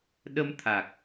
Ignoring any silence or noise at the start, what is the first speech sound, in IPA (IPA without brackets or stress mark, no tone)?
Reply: ɗ